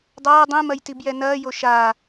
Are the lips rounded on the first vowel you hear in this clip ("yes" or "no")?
no